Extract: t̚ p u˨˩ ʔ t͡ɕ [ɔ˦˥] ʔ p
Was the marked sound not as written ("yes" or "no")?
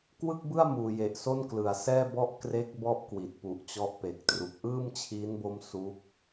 no